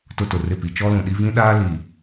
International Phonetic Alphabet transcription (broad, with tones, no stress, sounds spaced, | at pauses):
t ʊ˦ t ʊ˨ r ɪ˦˨ p i˨ t͡ʃ ɔ˦ l ũ˨ ɗ i˦ v ĩ˦ ɗ aː˦ l iː˨